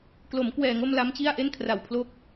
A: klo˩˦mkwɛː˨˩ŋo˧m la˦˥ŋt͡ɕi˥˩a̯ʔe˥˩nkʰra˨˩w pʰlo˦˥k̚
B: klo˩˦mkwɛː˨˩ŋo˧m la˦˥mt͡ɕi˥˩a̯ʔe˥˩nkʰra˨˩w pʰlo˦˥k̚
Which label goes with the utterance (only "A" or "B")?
B